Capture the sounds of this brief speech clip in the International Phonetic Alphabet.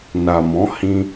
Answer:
na˨mɔ̃˨˦hĩ˧

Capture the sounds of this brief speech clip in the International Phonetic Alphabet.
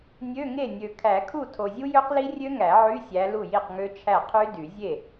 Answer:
nʲø˧˥˧ ŋe˥˩nʲø˨ kʰæ˨˩˦kʰu˥˩ tʰo˨zʲu˦˥jø˦˥qli˦˥ rʲø˦˥ŋæ˨˩˦ ʕy˧˥˧sʲæ˨˦ lu˥˩ji˥˩qŋø˦˥ t͡ʃʰæ˥˩ qʰy˦˥dy˨˩˦ zʲe˥˩

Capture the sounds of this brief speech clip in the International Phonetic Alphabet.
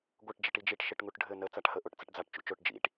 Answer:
ɡʷəʈ d͡ʒəʈid͡ʒiʈ ʃɘʈŋuʈɖʱɘ nə t͡saʈhəʔoʈ t͡səʈd͡zaʈ t͡ʃṵt͡ʃoʈ d͡ʒḭʈ

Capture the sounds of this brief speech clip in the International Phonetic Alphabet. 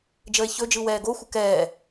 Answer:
d͡ʒəːe̯çɵd͡ʒɯ wɛːɡoxʷə kɛː

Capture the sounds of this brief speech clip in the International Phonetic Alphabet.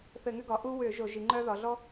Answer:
θɘ˧˩˧ŋʏ˥ɡɒ˩˧ʔu˥ wʏ˧˩˧ ʒo˧˩˧ʒi˩˧ŋ͡ǃœ˥ ðɒ˩˧ɮɔ˥

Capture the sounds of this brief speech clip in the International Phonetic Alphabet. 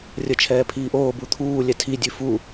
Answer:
rʲət͡ʃʰɛː pʰiːʔoː but̪ʰuː lʲɛtʰi dʲʉfu

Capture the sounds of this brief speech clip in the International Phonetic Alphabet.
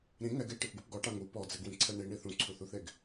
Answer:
ɾĩ ŋɛɡ eʈɨpɡup ɡɔʈa ŋu pɔd͡zɛɡwĩǀʰɛ ɳiɳi θũǀʰuθuθeɡ

